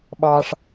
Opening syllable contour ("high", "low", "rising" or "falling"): low